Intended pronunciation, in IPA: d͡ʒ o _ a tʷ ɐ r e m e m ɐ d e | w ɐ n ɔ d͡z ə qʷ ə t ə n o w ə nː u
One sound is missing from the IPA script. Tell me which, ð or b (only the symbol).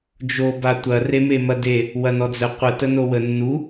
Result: b